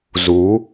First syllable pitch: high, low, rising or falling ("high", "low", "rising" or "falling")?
rising